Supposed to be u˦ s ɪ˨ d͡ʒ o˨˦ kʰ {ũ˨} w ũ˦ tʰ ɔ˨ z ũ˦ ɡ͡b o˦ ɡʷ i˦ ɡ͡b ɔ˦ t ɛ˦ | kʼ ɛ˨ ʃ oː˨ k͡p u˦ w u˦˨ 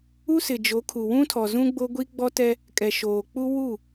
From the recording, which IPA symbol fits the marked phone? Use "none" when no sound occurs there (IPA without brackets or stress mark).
u˨